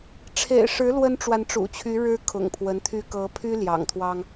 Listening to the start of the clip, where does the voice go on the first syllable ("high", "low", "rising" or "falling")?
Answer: low